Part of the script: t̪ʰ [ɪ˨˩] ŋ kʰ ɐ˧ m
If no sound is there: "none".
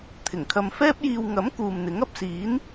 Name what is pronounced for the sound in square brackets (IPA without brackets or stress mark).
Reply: ɪ˨˩